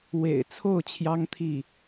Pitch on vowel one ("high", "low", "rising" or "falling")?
low